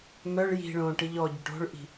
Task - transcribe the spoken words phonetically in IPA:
m œ ɭ j i̤ ɭ õ ʈ i ʎ ɔ ɟ œ ʈ o̤ ɭ ʔ i̤

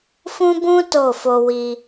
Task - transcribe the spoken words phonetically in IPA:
f ũ˦ b ũ˦ t o˦˨ f o˧ w i˧

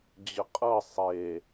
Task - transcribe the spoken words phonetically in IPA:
d͡ʑ ə qʼ ɤ sˤ e

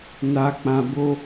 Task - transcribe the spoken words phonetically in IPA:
n a˨ k͡p ã˨ b o˦

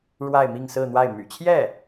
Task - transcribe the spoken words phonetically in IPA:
ɻ w a˥˧ ɪ̯ m i˥˧ ŋ s ɹ̩˥˧ n̪ w a˥˩ ɪ̯ m y̰˨˩ t͡ɕʰ j ɛ˥˩

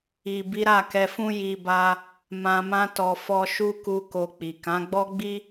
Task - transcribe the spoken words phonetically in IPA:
i˨ b i˨˦ ɾ a˦˨ k ɛ˧ f ũ˦ j i˧ b a˧ | m ã˧ m ã˦ t ɔ˧ f ɔ˧ ʃ u˦ k u˧ k o˧ k͡p i˨ k ã˨˦ ɡ͡b ɔ˦ ɡ͡b i˦

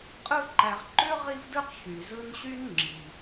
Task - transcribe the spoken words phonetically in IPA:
qʼ ɯ˥ ǃ æ˨ ʁ ǃ ø˥ ʁ i˥ v d ɯ˥ q ç y˩ z ɯ˦ n ɕ y˥ n ŋ͡ǁ i˩

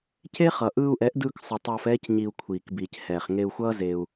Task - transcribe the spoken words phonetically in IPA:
c e˦ χ ʌ˨ ʔ ɯː˧ u̯ ʔ ɛ˨˦ ʔ d ɯː˧ k sˤ ɯ˨ tˤ ʌː˧ f ɛː˦ c ɲ i˧ u̯ kʷʰ iː˨ k b iː˨ c h ɛː˨ χ ŋ e˧ u̯ xʷ ʌː˦ z e˧ u̯

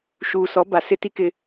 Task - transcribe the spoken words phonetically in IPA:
ʃ uː˨ s ɔ˨˦ b a˨ s ɪ˦ t i˦ k ɪ˦

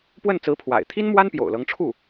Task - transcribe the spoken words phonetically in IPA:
p w ə˥˩ n t͡s ɹ̩˧˥ pʰ w a̰˨˩ ɪ̯ t̪ʰ i˥ n m w a˥ n p j o̰˨˩ ʊ̯ l ɤ˧˥ ŋ ʈ͡ʂʰ u˥˩

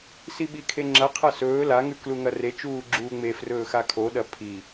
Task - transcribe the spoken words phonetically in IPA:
s i ɓ i kʰ e ŋ͡ǁ ɐ qʰ ɐ s ɵː l a ŋ ʉ k l u ŋ ɐ r e t͡ʃ uː ɡ͡ǁ uː ŋ͡m e f r ɵː x a kʰ o ɗ ɐ pʰ i

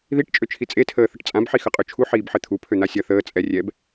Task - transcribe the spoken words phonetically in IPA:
ð i ʈ t͡ʃʼ ø t͡ʃʰ i t͡sʼ e tʰ əː θ ə ʈ t͡sʼ ã b ħ i x ə qʼ ø t͡ʃʰ u ħ iː b ħ ɘ t̪ʰ u pʰ ø n̪ a sʲ ɐ θ əː t͡sʼ ɛ rʲ ɛ b

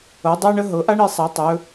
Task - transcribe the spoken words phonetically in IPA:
ɤ˨˦ dˤ a˥ ɳ ə˥ ɦ ɤ˨˦ ʔ a˥ ɳ i˨˦ sˤ a˨˦ tˤ ɵ˨˦

